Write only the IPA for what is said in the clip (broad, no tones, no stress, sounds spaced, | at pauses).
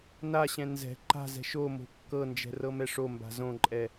n a ɕ ɛ̃ n z ɛ̤ ǃ a̤ z ɛ̤ ʃ o m o̤ kː ɤ n d͡ʒ ɛ̤ r ɤ m ɛ ʂ o m b a̤ z õ ǃʼ ɛ